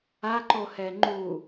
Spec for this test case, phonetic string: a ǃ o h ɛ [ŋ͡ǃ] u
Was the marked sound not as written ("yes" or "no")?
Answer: no